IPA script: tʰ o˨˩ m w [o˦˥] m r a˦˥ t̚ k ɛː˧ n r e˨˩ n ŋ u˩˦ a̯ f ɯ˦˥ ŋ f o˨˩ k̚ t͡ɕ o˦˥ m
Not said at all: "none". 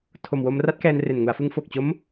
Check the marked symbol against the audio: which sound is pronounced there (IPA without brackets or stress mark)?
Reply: o˧